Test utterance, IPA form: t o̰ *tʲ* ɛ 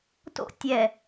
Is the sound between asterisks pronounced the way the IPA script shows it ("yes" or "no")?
yes